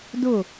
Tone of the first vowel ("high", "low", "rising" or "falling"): falling